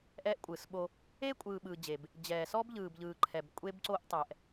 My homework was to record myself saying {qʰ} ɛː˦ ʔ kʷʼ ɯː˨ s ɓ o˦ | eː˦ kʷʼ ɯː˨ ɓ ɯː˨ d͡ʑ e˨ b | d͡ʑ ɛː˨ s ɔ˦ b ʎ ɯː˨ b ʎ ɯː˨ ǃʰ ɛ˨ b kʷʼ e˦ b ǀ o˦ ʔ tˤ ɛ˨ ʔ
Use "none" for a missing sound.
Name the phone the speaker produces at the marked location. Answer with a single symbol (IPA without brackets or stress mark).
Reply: ʔ